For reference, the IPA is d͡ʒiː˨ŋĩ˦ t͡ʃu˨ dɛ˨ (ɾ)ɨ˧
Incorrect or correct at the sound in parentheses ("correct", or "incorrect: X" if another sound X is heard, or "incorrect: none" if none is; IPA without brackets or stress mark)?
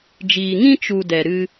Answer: correct